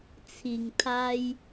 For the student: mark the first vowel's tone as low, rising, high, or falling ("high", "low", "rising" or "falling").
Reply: low